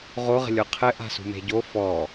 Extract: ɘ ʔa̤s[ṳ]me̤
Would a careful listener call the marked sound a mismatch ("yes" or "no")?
no